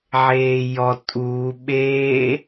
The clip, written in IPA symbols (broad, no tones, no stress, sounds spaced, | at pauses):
ʕ eː j ɔ tʼ u ɓ eː